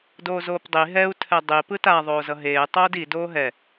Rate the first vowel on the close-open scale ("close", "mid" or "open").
mid